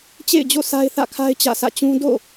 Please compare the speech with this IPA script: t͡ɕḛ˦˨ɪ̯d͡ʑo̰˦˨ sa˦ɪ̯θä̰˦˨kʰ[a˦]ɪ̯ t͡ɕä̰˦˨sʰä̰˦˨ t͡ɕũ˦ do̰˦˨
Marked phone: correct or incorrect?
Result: correct